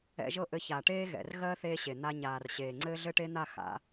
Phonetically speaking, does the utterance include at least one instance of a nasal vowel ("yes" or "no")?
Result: no